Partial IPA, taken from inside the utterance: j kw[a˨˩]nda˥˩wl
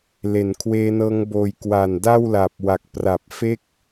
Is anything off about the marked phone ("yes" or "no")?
no